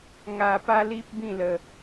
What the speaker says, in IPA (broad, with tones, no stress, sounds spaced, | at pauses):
ŋ a˧ p a˦ l i˦ p̚ b ĩ˥˧ l ə˧